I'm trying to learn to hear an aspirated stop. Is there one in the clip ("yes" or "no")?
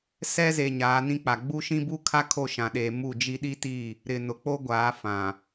yes